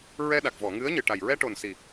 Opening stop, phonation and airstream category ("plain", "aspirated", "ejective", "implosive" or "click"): implosive